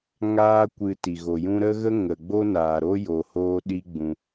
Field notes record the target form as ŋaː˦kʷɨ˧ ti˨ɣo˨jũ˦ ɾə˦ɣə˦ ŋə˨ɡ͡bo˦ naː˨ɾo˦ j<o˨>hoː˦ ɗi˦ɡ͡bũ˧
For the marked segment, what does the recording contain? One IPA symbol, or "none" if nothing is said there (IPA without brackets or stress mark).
o˧